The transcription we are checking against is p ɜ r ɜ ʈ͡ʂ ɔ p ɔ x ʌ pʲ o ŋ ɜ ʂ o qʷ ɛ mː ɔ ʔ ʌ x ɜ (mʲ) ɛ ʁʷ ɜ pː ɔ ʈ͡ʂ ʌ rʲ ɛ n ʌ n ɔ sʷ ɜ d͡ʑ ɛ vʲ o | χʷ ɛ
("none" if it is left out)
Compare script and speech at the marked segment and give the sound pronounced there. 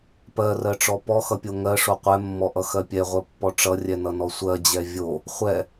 pʲ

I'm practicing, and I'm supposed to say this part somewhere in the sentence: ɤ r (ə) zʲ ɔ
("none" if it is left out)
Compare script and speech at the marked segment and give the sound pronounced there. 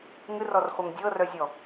œ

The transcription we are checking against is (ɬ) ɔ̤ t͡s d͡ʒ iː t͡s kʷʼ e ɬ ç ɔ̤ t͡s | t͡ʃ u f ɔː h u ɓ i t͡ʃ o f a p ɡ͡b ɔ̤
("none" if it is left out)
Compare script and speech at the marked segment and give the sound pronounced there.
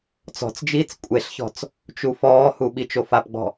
t͡s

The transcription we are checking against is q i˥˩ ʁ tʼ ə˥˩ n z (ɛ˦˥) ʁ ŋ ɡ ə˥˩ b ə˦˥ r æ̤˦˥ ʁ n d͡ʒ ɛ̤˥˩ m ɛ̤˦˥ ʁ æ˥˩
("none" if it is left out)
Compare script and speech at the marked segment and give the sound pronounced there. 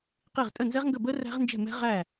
ɛ˦˥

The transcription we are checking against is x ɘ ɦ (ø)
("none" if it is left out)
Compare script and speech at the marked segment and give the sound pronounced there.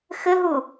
u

